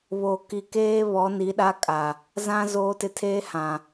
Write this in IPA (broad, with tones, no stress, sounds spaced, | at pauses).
β o˨ k i˨ k eː˦ β ɔ˨˦ n i˨˦ ɗ a˦ kʼ a˨ | z ã˦ z oː˦ t ɪ˦ tʰ eː˦ h ã˨